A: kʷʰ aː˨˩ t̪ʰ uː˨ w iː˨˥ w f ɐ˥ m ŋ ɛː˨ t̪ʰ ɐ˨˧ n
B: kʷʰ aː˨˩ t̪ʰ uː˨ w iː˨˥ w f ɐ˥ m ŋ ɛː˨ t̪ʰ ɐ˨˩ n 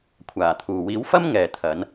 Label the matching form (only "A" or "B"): A